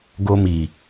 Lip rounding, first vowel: rounded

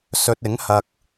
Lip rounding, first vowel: rounded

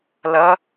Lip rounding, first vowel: unrounded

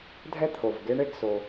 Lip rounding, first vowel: unrounded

